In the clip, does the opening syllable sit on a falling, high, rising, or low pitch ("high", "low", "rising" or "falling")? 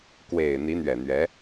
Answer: low